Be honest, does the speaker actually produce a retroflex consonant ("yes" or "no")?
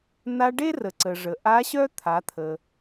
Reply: yes